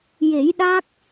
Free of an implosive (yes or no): no